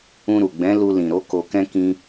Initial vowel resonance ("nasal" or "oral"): nasal